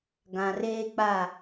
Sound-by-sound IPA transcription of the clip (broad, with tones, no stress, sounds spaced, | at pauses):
ɡ ã˨ r eː˦ k͡p a˦˨